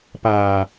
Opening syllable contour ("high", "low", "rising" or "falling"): low